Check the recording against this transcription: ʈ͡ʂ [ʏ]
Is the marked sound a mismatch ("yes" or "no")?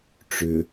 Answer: no